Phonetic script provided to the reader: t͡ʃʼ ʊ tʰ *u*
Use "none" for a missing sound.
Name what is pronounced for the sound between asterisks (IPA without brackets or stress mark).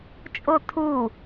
u